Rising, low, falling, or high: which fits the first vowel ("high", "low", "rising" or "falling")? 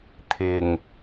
low